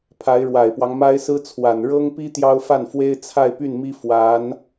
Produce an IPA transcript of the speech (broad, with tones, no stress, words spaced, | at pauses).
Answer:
pʰa˧˥ɪ̯ɻwa˨˩ɪ̯pwɑ˦ŋ ma˥ɪ̯sɹ̩˥t͡sʰwa˨˩n ɻɤ˥ŋpi˥ t̪jɑ˥ʊ̯fa˥˩nfwe˥ɪ̯ t͡sʰa˥˧ɪ̯py˥˩nmi˥ fwa˧˥n